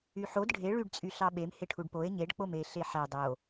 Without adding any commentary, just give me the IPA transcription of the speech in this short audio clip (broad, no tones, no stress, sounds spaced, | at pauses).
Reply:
y ħ o d ɖʱ e ɭ y ɖ t͡sʼ y ɬ ɑ ɓ e m h e ʈʰ u ɖ p o e̯ ɲ e ɖ k͡p o m e ɬ e ħ æ dˤ o